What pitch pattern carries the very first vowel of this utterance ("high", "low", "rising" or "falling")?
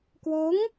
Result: rising